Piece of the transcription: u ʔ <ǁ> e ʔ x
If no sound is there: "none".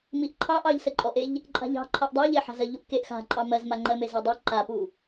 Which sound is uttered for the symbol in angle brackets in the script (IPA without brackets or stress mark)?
k